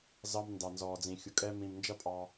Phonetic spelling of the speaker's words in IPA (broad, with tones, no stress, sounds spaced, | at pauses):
z ɑ˧ m n d ɑ˨ n z ɔː˨ d͡z ĩ˨ xʲ ʊ˨ kʼ ɛː˧ m ĩ˨ m n d͡ʒ ʌ˦ pʼ ɑ˧